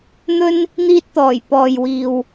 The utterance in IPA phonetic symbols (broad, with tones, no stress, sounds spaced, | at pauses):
n̪ ɵ˥ n | n̪ iː˧ t̚ t̪ ɔː˨˩ j p ɔː˨ j w iː˨ w